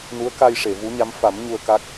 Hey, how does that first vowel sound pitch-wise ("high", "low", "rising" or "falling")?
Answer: rising